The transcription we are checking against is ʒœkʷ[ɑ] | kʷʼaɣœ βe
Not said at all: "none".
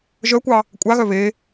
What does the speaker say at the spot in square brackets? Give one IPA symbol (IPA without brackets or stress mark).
ɑ